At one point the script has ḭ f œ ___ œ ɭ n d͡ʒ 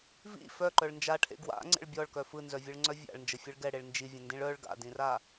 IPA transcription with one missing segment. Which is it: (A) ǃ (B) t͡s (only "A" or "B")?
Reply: A